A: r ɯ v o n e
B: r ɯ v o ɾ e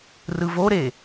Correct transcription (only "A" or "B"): B